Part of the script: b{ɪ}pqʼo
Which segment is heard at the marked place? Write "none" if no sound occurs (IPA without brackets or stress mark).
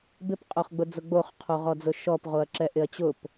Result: ɪ